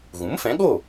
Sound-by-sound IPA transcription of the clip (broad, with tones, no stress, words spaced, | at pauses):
ɣũ˩˥mfɛ̃˩˥ɠo˥˩